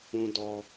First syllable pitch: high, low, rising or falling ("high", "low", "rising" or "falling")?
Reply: low